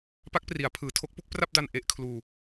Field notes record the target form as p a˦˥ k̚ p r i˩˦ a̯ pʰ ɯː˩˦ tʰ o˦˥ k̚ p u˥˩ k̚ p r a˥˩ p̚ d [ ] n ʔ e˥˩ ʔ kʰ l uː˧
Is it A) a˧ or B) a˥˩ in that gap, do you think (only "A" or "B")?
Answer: A